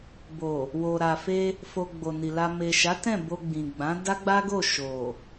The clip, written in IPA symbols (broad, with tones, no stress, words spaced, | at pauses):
bo˨ | wo˨ ɾa˨fe˧ | fo˧ɡ͡bo˨ni˨ la˧ me˨ʃa˨˦tɛ̃˦˨ bo˧ɡ͡bĩ˨ɡ͡bã˨˦ da˦ɡ͡ba˦ɡo˦˨ ʃo˨